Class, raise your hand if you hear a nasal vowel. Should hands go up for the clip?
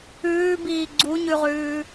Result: no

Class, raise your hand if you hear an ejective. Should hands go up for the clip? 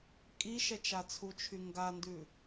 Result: yes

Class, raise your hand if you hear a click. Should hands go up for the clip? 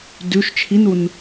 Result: no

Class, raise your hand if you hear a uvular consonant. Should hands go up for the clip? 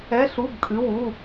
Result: no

